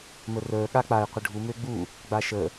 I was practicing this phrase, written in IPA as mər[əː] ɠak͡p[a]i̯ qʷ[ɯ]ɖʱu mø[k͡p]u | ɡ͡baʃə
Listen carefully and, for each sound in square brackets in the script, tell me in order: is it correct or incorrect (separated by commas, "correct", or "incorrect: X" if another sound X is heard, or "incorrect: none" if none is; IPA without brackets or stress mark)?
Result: correct, correct, incorrect: ə, incorrect: ɡ͡b